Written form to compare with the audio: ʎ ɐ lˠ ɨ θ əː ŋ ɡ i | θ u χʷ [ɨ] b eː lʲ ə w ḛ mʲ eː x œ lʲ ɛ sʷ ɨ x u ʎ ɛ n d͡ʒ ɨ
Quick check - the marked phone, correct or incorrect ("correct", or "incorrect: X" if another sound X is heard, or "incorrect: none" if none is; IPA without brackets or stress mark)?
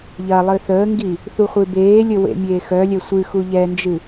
correct